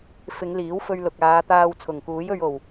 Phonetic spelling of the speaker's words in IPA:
fɪ˨˧ŋliː˨˥wfɵ˧ɥlʊ˨k̚ aː˨˧t̪aː˧w t͡sʰʊ˨˩ŋkuː˨˥jɵ˧ɥ o˨˩w

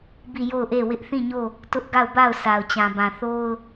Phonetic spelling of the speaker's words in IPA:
bi˦˨jo˦˨ʊ̯ʔe˦˨wɪ˦ʔ θĩ˦˨ɲo˦˨ | tʊ˦ʔɡa˦˨ʊ̯ba˦˨ʊ̯ sa˨ʊ̯t͡ɕã˨bã˨ θo˦ʊ̯

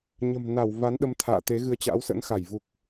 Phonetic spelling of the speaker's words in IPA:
ɲə̤˨˩mna˧˩wva˨˦nɗə˧m t̪ʰa̰ː˧˨t̪e˨˦ɣɨ˧ə̯ t͡ɕa̰˧˥wsə̰˧˥n xa˧˩jvu˨˩k̚

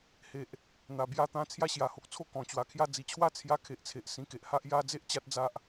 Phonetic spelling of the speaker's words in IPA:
he˨ʔ | n̪a˨˩bja˦ t̪ã˧ t͡sʰja˦ɕja˨˩ho˨k̚t͡sʰo˦ kɔ̃˨˩ t͡ɕwa˨˩kʰja˥˧ d͡zi˨˩t͡ɕʰwa˥˧ t͡sʰja˧kʰe˨ʔt͡sʰe˨ʔ sĩ˨˩ke˨ʔ ha˦ʔ ja˧d͡ze˦ʔ t͡ɕa˦t̚d͡za˦ʔ

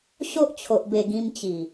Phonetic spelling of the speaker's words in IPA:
ɕo˦ʔt͡ɕʰo˨ʔ be˨˩ ɡĩ˧mt͡ɕi˨˩

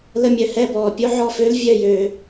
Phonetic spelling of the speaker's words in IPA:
lə˥˧mʲœ˧hɛ˥˧bɔː˧ pʲo˥ʕɔ˥˧fø˥l vʲœ˥˧jøː˧

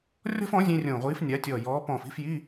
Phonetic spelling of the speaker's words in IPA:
rʲɔ̤˥fɔ̃˨˥ zʲẽ˥rʲõː˧˩ ʁʷiː˨˥f nʲa˨˥tʲɔː˧˩jɔː˨˥ pɔ̃ː˧˩fi̤˧˥˧fji˧˥˧

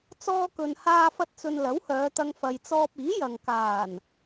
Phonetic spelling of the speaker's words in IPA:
t͡sɔː˧kɵ˨n haː˧fɐ˧t̚t͡sɵ˨n lɐ˨˥whœː˨˧t̪ɐ˧ŋ fɐ˨jt͡sɔː˧p̚ iː˨˥jɐ˨ŋ kaː˨˩n

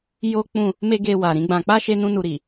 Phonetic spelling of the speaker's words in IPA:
jo˦k͡pũ˦˨ | me˦ɡe˧ wa˨ɾĩ˨˦ɡ͡bã˧ k͡pa˦ ʃe˦nũ˦nu˧ɾi˨

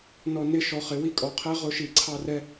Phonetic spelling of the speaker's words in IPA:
nɔ˧ nɪ˦ ʃɔ˧χɪ˧ wi˦kʼɔ˧qʰɛ˦ ʁʊ˦ʃi˧ ǀʰɑ˦rɛ˦

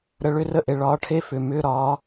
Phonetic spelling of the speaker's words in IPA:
ɾə˨ ɭʏ˧˥˧rə˧˥˧ʔe˨ ɭɒː˨˦ʈʰe˧˥˧fʏː˨ mʏː˧˥˧ɾɒː˨˦

